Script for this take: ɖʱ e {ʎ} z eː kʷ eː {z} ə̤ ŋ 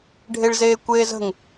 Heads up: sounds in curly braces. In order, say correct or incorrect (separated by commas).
incorrect, correct